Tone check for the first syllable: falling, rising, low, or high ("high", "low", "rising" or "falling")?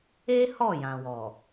high